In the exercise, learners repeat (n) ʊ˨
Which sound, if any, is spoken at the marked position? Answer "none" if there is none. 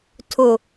tʰ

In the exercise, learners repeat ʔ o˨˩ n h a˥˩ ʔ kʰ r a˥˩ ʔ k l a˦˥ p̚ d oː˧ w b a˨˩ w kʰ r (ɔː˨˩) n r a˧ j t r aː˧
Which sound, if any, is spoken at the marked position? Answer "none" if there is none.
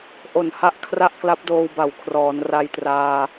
ɔː˩˦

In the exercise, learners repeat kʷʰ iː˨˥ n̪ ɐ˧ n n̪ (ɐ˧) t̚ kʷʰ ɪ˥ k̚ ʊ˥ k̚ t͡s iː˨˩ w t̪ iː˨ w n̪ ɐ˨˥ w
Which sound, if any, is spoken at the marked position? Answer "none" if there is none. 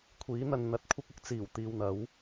ɐ˧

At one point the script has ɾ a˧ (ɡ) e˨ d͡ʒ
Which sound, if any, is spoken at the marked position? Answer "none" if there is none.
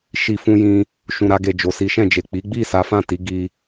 ɡ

